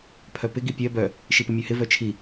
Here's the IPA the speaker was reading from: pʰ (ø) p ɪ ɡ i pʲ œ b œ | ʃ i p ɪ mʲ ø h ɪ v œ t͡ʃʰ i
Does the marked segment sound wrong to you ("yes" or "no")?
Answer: yes